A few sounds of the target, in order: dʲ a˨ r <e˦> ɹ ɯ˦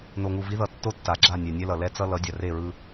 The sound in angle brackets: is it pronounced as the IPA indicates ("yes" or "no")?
no